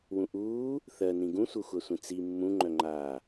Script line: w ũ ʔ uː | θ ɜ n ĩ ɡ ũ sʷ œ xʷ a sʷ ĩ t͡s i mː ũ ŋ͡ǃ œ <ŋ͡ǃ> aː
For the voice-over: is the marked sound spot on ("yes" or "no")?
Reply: yes